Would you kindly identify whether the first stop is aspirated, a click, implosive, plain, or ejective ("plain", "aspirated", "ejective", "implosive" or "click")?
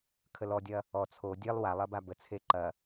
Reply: aspirated